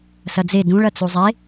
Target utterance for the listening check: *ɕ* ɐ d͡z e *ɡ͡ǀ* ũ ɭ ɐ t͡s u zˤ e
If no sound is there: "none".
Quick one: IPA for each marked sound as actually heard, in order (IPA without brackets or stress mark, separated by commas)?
s, d